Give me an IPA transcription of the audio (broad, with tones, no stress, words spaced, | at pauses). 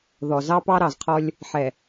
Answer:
ðɔ˨zɑ˦ pɑ˦ɾɑ˨zqʰɔ˦lʲ | ħɛ˨